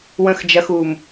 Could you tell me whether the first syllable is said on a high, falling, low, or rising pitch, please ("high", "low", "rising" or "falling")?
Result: low